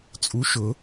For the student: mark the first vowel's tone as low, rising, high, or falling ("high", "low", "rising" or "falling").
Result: rising